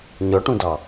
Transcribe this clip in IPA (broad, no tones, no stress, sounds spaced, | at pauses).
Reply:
ɲ ɔ ʈ ũ d ɑ